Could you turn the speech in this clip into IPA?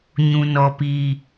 ɲũ˨nɔ˨piː˨

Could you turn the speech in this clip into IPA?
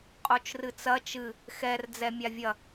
qʼot͡ʃrɨt͡sɐ t͡ʃɨ | xɛr d͡zɛmʲavʲɐ

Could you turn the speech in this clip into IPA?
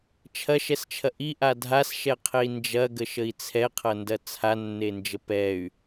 t͡ʃʰɐʃɛst͡ʃʰɐʔ iʔa dʱasʃɛqʰei̯ nd͡ʒɐɡəʃəi̯ t͡sʰɛqʰɐndɐ t͡sʰanːend͡ʒə pɛy̯

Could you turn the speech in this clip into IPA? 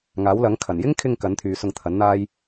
ŋaː˨˥wlɐ˨˥ŋkʰɐ˨˩n jɪ˥ŋkʰɪ˧ŋ kɐ˨˥nt̪ʰyː˨ sʊ˧ŋt̪ʰɐ˨˥nn̪aː˥j

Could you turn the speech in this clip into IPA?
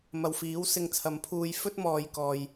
mɐ˨wfiː˨˥w sɪ˧ŋt͡sʰɐ˨˧mpʰuː˧j fɵ˥t̚mɔː˨jkɔː˨j

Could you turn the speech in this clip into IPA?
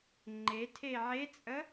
ŋ͡ǃe tʰeʕet͡sʼə

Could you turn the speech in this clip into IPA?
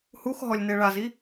hux ɦɔlʲneɭazi

